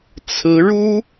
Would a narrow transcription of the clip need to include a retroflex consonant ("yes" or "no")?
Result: yes